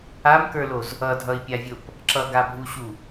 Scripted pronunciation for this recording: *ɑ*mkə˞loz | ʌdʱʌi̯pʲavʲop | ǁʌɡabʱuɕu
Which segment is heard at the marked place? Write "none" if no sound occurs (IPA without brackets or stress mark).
a